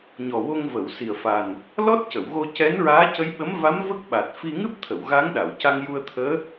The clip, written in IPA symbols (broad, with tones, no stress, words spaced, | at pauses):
ɲɔ˨˩wo˧ŋ və˨˩˨wsi˨˩ə̯fa˨˩n | lɔ˦˥t̚cə˨˩˨wɣo˧ cɛ˧˥nɹaː˧˥cə˧˥jɓə˧˥m va˧˥m və˦˥k̚ɓa˨˩t̚fi˧ ŋɨ˦˥p̚t̪ʰə˨˩˨w ɣa˧˥ŋɗa˨˩˨wca˧ŋ ju˧ə̯t̪ʰəː˧˥